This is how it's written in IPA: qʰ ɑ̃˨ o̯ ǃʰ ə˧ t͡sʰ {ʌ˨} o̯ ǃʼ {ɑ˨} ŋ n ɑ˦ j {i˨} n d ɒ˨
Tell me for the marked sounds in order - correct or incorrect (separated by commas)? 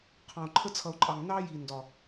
correct, correct, correct